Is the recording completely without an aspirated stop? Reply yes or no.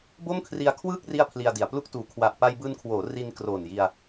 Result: no